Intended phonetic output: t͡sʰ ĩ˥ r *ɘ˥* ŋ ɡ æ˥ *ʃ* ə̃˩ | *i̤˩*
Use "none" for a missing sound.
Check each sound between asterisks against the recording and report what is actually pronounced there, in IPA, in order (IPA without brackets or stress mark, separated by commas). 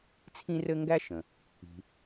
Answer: ɘ˥, ʃ, i̤˩